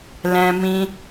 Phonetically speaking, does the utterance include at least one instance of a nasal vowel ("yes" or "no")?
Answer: yes